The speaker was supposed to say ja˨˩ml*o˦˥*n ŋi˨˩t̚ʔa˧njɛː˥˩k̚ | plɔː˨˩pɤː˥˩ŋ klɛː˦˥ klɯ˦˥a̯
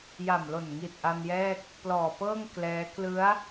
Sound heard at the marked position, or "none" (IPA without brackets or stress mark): o˨˩